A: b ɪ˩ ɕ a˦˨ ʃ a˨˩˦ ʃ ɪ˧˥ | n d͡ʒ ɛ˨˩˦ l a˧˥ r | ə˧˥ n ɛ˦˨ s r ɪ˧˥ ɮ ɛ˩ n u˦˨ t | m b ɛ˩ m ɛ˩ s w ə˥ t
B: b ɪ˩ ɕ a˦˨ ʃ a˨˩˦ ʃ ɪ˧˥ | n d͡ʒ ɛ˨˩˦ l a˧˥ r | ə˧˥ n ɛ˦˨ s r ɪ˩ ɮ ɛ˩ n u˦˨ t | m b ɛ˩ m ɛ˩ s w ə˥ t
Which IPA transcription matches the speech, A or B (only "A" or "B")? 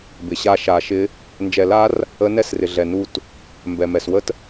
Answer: B